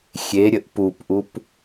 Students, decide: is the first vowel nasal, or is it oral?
oral